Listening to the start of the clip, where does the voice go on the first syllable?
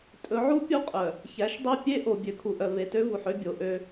rising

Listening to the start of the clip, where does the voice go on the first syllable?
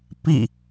falling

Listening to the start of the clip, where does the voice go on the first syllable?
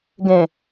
low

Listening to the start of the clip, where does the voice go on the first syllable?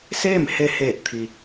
falling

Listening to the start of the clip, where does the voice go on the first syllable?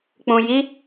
low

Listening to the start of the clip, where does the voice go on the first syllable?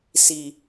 low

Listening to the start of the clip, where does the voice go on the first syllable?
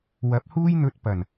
rising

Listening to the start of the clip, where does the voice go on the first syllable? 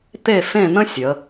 falling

